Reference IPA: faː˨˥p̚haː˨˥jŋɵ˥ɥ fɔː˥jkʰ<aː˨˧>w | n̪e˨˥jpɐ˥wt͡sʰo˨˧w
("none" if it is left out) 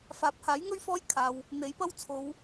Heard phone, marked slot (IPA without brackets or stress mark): aː˨